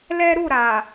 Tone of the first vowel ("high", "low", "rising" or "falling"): high